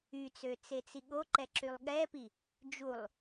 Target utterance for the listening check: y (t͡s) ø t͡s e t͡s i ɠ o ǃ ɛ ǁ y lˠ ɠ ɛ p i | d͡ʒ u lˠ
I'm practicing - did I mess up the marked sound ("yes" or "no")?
no